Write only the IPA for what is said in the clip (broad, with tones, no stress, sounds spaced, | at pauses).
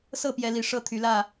s ɤ˥˨ p j ɛ˨˦ l i˨˩ ʂ ɤ˥˨ t̪ʰ y˨˦ l ä˥˨